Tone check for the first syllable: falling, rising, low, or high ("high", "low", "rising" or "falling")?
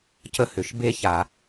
high